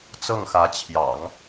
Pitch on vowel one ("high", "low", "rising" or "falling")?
falling